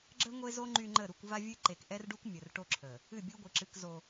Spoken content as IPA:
ɡ͡ǁ ə˦ ŋʷ e˦ z o˦ ŋ͡ǃ y˦ ŋ͡ǃ ə˦˨ ɾ u˦˨ kʷ v a˦ vʲ ɨ˦ ǃ e˨ k ʔ ɛ˦ r ɖ u˦ kʷ mʲ ə˨ r ʈ o˦ ǁʰ ə˨ | ɨ˦˨ bʲ u˦ ɡʷ ɨ˨ ǁ ɨ˦ k z o˦

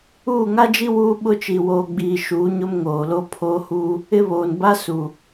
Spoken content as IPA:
uː˦˨ ŋ a˦ d͡ʒ i˦ w uː˦ ɓ ʊ˦ t͡ʃ i˨ w oː˨ ɡ͡b iː˨ ʃ uː˨˦ ɲ ʊ˦ m ŋ oː˨ l o˦ pʰ oː˦ h uː˦ | ɪ˦ β oː˨ n b a˦ s u˨

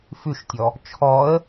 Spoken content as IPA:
f ʉ ʃ tʲ ɔ | t͡ʃʰ ɔ ə̯

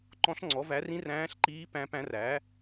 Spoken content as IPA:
ǃ ɔ̃˧˥ ɬ ŋ͡ǀ ɔ˩˥ v æ˩˥ r ĩ˧˥ r æ̃ː˧˥ ɬ ǃ iː˧˥ p æ̃˧˥ p æ̃˧˥ r æ˩˥

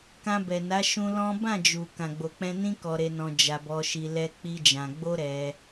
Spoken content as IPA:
k ã˧ b ɛ˨ n a˨˦ ʃ ũ˧ l ɔ̃˦ b ã˦˨ d͡ʒ u˨ k ã˨ ɡ͡b o˨ k͡p ɛ̃˧ n ĩ˦ k ɔ˧ ɾ e˧ n ɔ̃˧ d͡ʒ a˧ b ɔ˧ ʃ i˧ l ɛ˦ k͡p i˦ d͡ʒ ã˧ ɡ͡b o˦ ɾ ɛ˧

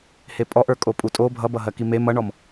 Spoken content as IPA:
h e pʼ ɔ ʔ ə˞ kʼ o pʼ u tʼ o bʱ ʌ b ʌ ɦ ɜ k i m e m ʌ ɳ ɔ m

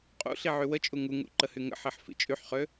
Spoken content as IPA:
qʼ ṵ ɬ i ʕ y w ə t͡ʃʼ u ŋ u ŋ ṵ ǃ ə h y ŋ ə̰ ħ i ħ f ḭ t͡ʃʼ y ħ χ ø

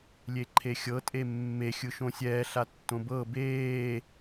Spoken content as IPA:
lʲ e ǃʰ e xʲ ɤ tʼ e mː e xʲ ɯ ʃ õ sʲ ɛː ɬ a tː õ b ɤ b eː

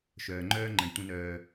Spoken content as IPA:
ʃ œː˨ ŋ͡ǃ œː˦ ŋ͡ǃ ə̃˨ d tʷ ə̃˧ n œː˨

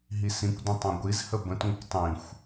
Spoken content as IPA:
ɦ i s ĩ kʷ d ə̃ tˤ ɑ̃ ɡʷ i z h ə b ə̃ t ŋʷ ə kʷ tˤ ĩ xʷ

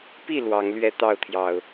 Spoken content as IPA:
p i˥˨ l w ɑ˨˦ ŋ l ɥ ɛ˦ t̪ ɑ˥˨ ʊ̯ t̪ʰ j ɑ˨˩ ʊ̯

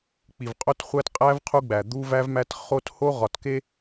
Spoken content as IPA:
k͡p i˨ v qʼ o˦ t χʷ æ˦ t qʼ æ˦ v qʰ u˦ ɡ͡b æ˨ d̪ u˦ v æ˦ v m æ˦ t χ o˦ t h o˦ ʁ ɒ˨ t k e˦

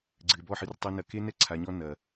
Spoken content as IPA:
ɡ͡ǀ ɨ˨ ɪ̯ b ɔ˦˨ ħ ɨ˧ r tˤ ɐ˦ n ɐ˧ k e˦ n ɛ˦ ǀʰ a˨˦ ɲ ɔ˦ n ɐ˨

